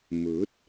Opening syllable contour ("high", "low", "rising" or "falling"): rising